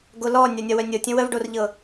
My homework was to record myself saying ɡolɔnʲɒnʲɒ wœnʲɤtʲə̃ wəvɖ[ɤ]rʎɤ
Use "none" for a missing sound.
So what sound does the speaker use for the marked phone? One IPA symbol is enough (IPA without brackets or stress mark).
o